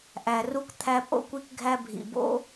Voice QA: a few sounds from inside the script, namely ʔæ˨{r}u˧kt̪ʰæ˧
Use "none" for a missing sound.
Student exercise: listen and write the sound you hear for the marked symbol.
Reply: r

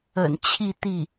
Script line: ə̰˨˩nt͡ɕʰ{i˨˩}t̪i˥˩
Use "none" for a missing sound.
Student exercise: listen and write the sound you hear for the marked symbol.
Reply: i˥˧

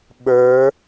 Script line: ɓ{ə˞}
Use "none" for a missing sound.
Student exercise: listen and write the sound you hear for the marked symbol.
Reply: ə˞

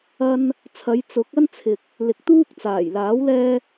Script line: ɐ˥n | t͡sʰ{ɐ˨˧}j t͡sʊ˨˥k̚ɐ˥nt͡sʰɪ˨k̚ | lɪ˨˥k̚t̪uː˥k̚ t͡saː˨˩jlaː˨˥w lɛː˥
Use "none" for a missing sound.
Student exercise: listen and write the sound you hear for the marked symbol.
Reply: ɐ˨˧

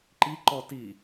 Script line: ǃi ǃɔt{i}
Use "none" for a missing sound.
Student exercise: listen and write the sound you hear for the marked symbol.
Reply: i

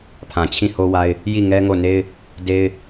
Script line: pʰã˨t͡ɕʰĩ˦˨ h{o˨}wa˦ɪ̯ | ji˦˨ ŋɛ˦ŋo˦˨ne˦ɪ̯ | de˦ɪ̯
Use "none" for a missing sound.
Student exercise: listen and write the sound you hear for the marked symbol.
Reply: o˦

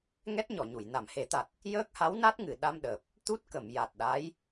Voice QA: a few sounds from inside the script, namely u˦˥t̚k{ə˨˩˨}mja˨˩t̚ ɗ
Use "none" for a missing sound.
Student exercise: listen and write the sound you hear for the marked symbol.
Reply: ə˨˩˨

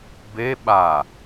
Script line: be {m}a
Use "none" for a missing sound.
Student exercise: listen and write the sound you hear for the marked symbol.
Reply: ɓ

